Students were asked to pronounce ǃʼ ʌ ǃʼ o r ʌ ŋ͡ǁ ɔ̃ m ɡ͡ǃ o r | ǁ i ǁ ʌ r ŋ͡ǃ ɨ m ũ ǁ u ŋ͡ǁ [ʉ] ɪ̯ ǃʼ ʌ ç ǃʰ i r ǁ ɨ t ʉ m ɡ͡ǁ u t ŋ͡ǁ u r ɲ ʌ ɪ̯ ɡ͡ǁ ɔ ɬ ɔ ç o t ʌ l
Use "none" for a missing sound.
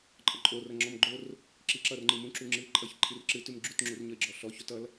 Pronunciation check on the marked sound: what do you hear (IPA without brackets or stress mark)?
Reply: ɨ